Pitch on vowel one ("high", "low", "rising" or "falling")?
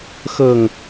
low